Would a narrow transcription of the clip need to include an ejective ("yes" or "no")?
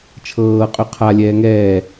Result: yes